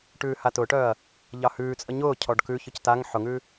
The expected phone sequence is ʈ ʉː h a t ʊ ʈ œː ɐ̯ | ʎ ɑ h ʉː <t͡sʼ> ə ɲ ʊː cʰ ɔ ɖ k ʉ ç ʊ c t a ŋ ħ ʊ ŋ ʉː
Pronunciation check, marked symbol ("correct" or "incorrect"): correct